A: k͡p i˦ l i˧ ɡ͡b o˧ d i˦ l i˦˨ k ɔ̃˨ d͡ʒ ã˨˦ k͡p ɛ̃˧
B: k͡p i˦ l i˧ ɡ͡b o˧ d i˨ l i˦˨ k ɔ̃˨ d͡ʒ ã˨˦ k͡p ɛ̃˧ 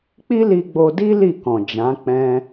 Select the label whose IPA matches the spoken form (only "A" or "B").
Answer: A